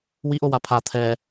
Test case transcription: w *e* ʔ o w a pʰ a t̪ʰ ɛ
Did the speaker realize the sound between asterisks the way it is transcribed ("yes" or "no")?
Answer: no